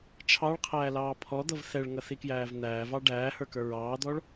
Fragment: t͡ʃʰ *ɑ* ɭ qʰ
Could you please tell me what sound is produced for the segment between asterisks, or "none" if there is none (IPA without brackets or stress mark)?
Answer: ɑ